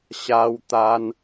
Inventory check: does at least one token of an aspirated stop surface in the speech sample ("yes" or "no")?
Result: no